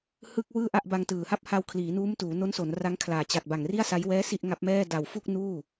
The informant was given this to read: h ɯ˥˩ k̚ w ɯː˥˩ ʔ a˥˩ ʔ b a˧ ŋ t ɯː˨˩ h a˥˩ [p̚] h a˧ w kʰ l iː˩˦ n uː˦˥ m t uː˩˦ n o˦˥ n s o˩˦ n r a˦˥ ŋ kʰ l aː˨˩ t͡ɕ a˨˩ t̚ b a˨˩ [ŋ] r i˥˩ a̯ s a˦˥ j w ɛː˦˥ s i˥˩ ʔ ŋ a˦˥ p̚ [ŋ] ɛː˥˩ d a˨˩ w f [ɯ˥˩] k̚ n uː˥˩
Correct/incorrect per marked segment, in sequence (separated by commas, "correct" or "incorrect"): correct, correct, incorrect, incorrect